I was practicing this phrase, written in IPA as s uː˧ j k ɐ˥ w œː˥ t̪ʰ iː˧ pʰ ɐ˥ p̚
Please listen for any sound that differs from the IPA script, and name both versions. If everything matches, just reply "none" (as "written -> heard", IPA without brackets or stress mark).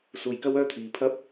none